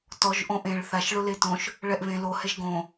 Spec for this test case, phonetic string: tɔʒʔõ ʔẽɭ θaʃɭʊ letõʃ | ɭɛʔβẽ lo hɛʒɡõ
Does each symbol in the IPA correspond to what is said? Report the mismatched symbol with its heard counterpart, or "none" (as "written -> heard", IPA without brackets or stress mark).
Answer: none